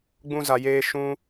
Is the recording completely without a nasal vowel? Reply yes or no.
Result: no